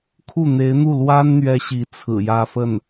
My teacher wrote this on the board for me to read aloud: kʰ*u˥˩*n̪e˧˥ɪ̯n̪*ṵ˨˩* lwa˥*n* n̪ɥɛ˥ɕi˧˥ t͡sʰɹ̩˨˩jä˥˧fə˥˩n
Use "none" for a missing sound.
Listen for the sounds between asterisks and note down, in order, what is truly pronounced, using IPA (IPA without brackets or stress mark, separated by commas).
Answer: u˥˩, u˥˩, n